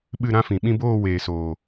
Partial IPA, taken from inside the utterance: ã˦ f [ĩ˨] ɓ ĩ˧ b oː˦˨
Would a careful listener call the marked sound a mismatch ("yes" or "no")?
no